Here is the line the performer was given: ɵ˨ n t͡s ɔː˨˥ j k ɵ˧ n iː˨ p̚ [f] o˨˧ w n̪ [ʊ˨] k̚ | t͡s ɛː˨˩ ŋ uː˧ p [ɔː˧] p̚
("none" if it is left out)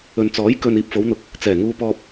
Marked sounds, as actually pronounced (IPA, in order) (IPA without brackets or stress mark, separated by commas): f, ʊ˨, ɔː˧